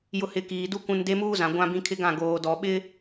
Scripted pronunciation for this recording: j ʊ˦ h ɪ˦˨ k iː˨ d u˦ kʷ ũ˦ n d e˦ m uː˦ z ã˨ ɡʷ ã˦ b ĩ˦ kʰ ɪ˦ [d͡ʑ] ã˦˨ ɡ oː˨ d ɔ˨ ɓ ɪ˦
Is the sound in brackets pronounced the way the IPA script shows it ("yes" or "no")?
no